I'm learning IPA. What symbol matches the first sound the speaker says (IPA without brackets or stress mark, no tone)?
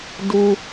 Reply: d